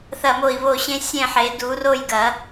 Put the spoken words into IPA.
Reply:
θ ɐ˥˨ m o˥˨ i̯ β o˥˨ ɕ ẽ˥ sʲ ẽ˥˨ ħ e˨˩˦ d u˨˩˦ r o˥˨ j ɡ ɐ˨˩˦

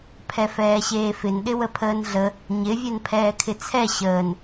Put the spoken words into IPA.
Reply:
pʰ ɛ f ɛː ɕ eː f ɪ n ɗ ɪ w ə pʰ əː n ɮ ə | ɲ ɪ vʲ ɛ n pʰ ɛː kʰ ɪ t͡sʰ ɛ ɕ əː n

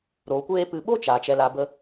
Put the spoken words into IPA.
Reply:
ɾ o˨˦ kʷ eː˦ p ɨ˨ ɓ o˦ t͡ʃ aː˨ t͡ʃ ɛ˧ l a˧ b ə˦

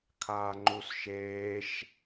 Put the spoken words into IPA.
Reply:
kʰ aː ŋ͡ǃ u s ʃ eː ʃ

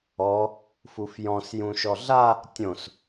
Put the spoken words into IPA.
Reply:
ɔ | f u f j ɔ̃ s j ũ ʃ ɔ ɮ a | tʲ õ s

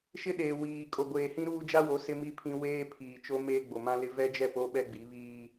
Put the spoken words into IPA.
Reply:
ʃ ɪ˦ ɗ eː˨ w iː˨ kʼ o˨ ɡʷ eː˨ h ĩ˦ ɾ uː˦ d͡ʒ a˦ w o˨˦ s ɪ˦ m i˦ pʰ ĩ˦ w eː˦ pʰ iː˨ t͡ʃ o˦ m eː˦ ɡ͡b o˨ m ã˦ l ɪ˦ v ɛ˦ d͡ʒ ɛ˦˨ p o˦ ɓ ɛ˦ ɡ͡b i˨˦ β iː˦

